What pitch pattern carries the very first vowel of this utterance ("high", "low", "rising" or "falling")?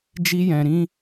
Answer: high